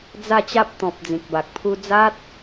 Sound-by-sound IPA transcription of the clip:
d͡z a˥˧ t͡ɕ a˦ p̚ t̪ ɔ̃˨ p̚ d͡z ĩ˨ k̚ b a˨ k̚ pʰ u˦ d͡z a˦ t̚

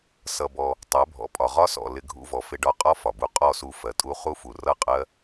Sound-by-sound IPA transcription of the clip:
s ʌ˧ b ɔ˧ | tˤ ɜ˨˦ bʱ ɔ̰˨ pʼ ɒ˨ ʁ ɒ˦ s ɔ̰˨ l ɪ˧ ɡʱ ṵ˧ v ɔ˨ f ɪ˧ ɖ ɒ˧ qʼ ɒ˦ f ɒ˨ b u˧ qʼ ɔ˦˨ s u˧ f ɜ˨ tʼ u˦ χ u˦ f u˨ r ʌ˦˨ qʼ ɜ˦

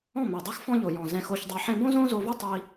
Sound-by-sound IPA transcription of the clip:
ɔ̃˦˨ m e˨ dˤ e˦ x f ɔ̃˦ ʎ o˨ j ɔ̃˨ z ɛ̃˧ x o˧ ç dˤ e˧ ħ ẽ˦ b õ˦ z õ˦ z o˧ v u˦ tˤ i˦

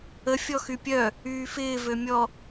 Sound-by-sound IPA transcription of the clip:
ə fʲ ɔ x y pʲ œ | yː f ɪː v ø mʲ ɔ

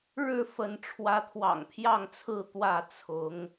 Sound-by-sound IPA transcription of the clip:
ɻ ɻ̩˥˨ f ə˨˦ n ʈ͡ʂʰ w ä˨˦ t̪ʰ w ɑ̰˨˩ ŋ pʰ j ɑ˥˨ ŋ t͡sʰ ɹ̩˥˨ t̪ w ä˥˨ t͡sʰ ʊ˨˦ ŋ

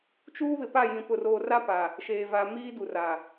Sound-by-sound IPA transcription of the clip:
t͡ʃ uː˦ β ɪ˨ p a˦˨ j ĩ˨ p ʊ˨ r oː˨ r a˦ p a˨ | ʃ eː˨ v a˨ m iː˦ d u˨ r a˨

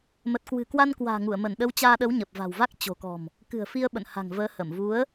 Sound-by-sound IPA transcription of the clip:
m ə˨˩ t̚ k w ɨ̤˨˩ k w a˧ n k w a̤ː˨˩ ŋ u˧˩ ə̯ m ə˧˩ n ɗ ə˨˦ w t͡ɕ aː˧ ɗ ə˨˦ w ɲ ə˨˩ p̚ v a̤˨˩ w v a˦˥ k̚ t͡ɕ o̤˨˩ k ɔ̤˨˩ m | k ɨ̤˨˩ ə̯ f i˧ ə̯ ɓ ə̰˧˨ n h a̤˨˩ ŋ v əː˨˦ h ə˧˩ m v u˨˦ ə̯

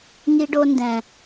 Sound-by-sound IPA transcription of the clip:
ŋ i˧ ɖ o˧ n d ɛ̃˨

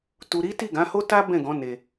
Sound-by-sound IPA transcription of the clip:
t u˨ ɾ i˨˦ t i˦˨ ɡ ã˨˦ h o˦ t a˦ b ɛ̃˦˨ ɡ ɔ̃˨˦ n e˧

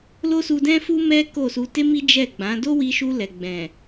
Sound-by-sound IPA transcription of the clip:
l o˦ s u˧ d ɛ̃˦ f u˦ m ɛ˦ k o˦˨ s u˧ t e˦ m i˦ d͡ʒ ɛ˦˨ ɡ͡b ã˨˦ d o˦ w i˧ ʃ u˧ l ɛ˨ ɡ͡b ɛ̃˨

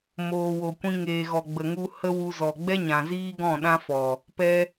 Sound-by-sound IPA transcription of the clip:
m oː˨ w o˨ kʷ ĩ˧ ŋ eː˨ ɣ ɔ˨ ɡ͡b ə˨ ŋ u˧ h ə˦ w u˧ z ɔ˨ ɡ͡b ɛ˦ ɲ ã˨ z iː˦ ɡ ɔ̃˦˨ ɗ ã˦ f ɔ˨ | p ɛ˧

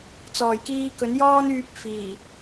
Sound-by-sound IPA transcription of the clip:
t͡s ɔː˨˩ j k iː˧ k ɵ˨˥ n j ɔː˥ n yː˧ p̚ f iː˨˩

